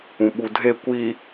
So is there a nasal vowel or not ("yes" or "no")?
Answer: yes